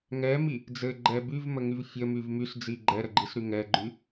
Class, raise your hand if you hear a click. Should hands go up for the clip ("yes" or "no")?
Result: yes